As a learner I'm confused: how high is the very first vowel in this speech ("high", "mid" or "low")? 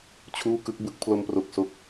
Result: high